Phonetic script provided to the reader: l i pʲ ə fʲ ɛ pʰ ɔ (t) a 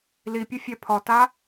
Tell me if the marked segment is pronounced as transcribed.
yes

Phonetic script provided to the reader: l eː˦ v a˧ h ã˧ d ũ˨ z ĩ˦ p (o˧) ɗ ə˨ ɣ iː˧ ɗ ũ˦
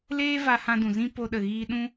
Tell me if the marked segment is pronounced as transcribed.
yes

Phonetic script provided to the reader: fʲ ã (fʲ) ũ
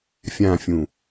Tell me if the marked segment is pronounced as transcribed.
yes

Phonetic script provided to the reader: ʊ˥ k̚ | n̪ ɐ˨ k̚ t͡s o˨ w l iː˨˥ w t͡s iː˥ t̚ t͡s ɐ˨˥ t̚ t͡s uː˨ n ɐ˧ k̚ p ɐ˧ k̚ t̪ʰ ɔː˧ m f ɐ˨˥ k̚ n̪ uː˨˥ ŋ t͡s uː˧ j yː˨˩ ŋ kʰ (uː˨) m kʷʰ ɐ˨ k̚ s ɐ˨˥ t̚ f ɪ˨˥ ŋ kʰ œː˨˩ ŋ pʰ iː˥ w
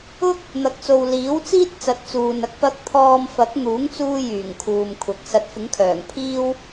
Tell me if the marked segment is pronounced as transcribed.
yes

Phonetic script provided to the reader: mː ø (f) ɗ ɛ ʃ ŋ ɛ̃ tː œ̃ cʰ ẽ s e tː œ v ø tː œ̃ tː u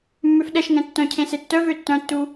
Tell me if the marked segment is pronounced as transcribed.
yes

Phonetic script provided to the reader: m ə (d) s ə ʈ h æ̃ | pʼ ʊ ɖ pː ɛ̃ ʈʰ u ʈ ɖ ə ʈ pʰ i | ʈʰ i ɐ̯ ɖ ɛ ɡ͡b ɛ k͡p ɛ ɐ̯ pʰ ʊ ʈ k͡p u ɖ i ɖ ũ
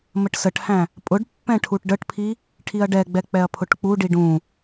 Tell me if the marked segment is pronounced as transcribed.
no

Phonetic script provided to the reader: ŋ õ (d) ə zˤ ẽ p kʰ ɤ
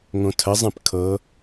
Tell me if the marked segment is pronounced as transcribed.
no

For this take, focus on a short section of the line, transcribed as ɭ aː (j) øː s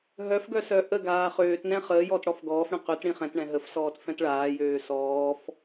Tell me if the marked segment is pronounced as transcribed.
yes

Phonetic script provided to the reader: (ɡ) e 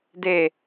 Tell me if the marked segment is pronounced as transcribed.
no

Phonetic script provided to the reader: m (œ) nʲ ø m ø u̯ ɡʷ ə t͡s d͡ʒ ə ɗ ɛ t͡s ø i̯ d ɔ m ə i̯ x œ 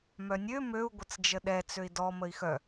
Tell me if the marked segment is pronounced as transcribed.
yes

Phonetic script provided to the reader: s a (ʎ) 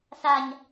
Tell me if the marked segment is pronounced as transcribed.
no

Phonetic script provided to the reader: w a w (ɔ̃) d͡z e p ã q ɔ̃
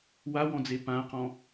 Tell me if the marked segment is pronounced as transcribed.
yes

